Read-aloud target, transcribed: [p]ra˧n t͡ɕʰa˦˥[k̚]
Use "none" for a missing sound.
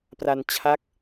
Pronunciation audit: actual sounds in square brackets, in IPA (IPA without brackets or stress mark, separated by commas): p, k̚